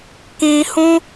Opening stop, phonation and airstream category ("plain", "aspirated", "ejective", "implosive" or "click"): plain